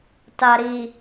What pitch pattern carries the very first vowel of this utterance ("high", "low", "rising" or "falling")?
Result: low